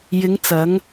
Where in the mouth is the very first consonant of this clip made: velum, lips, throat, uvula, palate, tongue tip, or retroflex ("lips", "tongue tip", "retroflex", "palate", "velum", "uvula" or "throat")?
palate